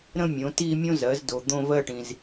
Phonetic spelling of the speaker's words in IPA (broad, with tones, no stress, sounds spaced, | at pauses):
ɾ ə̃˥˧ mʲ õ˩˥ t i˥˧ mʲ õ˥ z ɜ˩˥ z d o˨ d̪ õ˥˧ v ɜ˥˧ ʈ ĩ˨ z